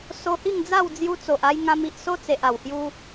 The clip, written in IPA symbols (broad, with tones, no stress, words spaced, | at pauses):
so˧hi˥˧ŋd͡za˥˧w d͡zju˧t͡so˨ʔa˧jŋã˧m i˨ʔso˦t͡se˨ʔ a˨˩whju˦